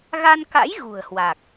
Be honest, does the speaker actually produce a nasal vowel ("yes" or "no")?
no